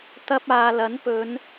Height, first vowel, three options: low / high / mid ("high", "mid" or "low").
low